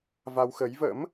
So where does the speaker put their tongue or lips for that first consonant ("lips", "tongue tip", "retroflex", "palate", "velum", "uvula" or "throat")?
lips